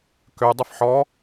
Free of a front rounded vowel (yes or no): no